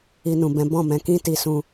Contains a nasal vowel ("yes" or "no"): yes